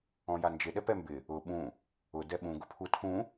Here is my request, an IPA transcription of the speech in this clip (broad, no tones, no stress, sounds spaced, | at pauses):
ɔ̃ j a n d͡ʒ ɪ ɗ ɛ p ɛ m b ɪ | ʊ ɓ ũ | ʊ d ɛ ɓ ũ ɡ ʊ pʰ u tʰ ũ